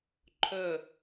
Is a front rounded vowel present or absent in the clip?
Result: present